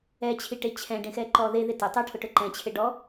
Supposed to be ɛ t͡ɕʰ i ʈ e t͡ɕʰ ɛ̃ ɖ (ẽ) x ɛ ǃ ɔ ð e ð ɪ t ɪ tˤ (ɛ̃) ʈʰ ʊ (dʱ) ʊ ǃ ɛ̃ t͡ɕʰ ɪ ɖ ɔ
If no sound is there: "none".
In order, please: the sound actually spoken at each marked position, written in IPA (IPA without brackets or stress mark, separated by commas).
ẽ, ɛ, ʈ